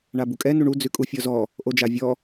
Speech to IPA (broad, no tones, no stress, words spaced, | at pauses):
ɳabukʼɛ nuɳu d͡zʉkʼufʲɔzɔ | ʔod͡ʒavʲɔ